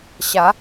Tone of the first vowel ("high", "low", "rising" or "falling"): rising